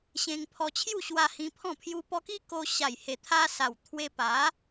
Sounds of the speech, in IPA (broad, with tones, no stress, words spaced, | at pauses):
ɕẽ˧ŋpʰɔ˧t͡ɕʰju˥˧ɕwa˧ hĩ˧pʰɔ̃˥˧ pʰju˧pɔ˧ki˦ ko˧ ɕa˨˩jhe˨˩t̪ʰa˧sa˨˩w t̪ʰwe˧ pa˨˦